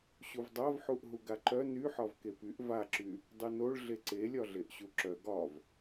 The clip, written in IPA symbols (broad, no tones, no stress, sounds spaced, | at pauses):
ɕ u v dˤ a v ħ u ʔ ɦ u ɡ a ǃ œ n y ħ ɒ v k e p y ʔ v a ǁ y | dˤ y n o ɭ ɮ e ǀ e lʲ ɒ ɮ e ʔ ɕ u ǁ œ ɡ ɒ v